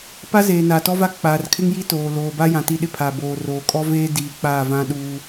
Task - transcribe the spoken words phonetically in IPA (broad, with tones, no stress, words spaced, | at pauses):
pa˦zeː˨ naː˨tɔ˦va˦ k͡paː˨rkʰɪ˦ŋji˦toː˨ loː˨ba˦jã˨ ti˦ ɗɪ˦pʰa˨ boː˨roː˨ kʼɔ˦veː˦ diː˨ k͡paː˦˨vã˦ɗuː˦